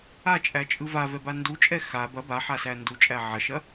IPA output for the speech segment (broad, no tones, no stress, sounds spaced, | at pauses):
a t͡ʃʼ æ t͡ʃʼ ɯ v a v ɛ b a n d u t͡ʃʼ ɛ x a b ɐ b a ħ a s æ n d u t͡ʃʼ æ ʕ ɐ ʃ ɐ